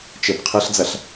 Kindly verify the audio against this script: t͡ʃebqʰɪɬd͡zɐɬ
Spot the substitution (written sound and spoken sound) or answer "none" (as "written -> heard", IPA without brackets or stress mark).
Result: ɪ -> ɨ